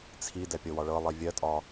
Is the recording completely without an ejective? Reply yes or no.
no